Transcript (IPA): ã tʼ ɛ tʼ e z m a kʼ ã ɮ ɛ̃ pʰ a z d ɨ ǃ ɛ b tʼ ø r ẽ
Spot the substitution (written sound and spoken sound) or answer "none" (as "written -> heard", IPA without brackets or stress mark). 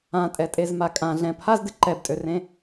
none